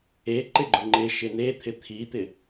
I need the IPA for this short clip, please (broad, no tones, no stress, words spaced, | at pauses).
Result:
e ǃɪɡ͡ǃʊŋ͡ǃɪ ʃɪnet̪ʰɪ t̪ʰit̪ɪ